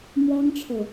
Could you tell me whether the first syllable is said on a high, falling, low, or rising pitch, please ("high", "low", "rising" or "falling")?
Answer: high